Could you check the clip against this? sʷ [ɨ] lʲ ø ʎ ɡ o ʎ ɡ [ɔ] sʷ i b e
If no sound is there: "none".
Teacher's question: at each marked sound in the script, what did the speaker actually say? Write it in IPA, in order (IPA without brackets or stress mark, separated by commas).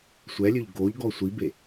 ɛ, ɔ